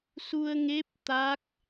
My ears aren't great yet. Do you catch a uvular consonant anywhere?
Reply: no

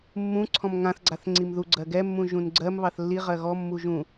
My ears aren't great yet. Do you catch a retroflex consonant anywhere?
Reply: no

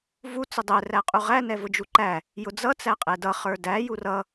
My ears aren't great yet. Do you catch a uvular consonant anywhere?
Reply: yes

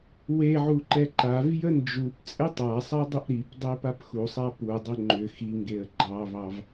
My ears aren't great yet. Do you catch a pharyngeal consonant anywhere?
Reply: yes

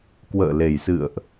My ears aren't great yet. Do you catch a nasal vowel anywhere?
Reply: no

